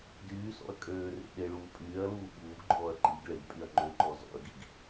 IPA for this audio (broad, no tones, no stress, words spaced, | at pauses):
dyːsɔ̰ɐ̯ kʼøːrḛ ɗeɭuː pʼyːɐ̯luː ɓuːɡɡ͡ǃɔːɐ̯ ǃiɡ ɭeɡpʼyɐ̯ ŋ͡ǃøǃɔ zɔ̰ɐ̯ɡiɡ